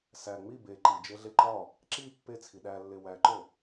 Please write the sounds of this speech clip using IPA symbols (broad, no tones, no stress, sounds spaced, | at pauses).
s æ ŋ͡m i b e ǃ i d͡ʒ e ɮ e ǃ ɒ | ǁ i pː e t͡sʰ i ɗ æ lː e w æ ǃ o